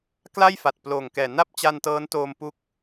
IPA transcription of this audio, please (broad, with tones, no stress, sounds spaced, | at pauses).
k l a˥˩ j f a˨˩ t̚ p l oː˨˩ ŋ k ɛː˨˩ n a˥˩ p̚ t͡ɕ a˧ n t ɤː˦˥ n t oː˧ m p u˦˥ k̚